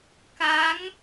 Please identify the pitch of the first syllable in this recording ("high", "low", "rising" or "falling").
rising